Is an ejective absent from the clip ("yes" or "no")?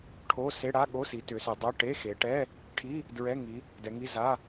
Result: yes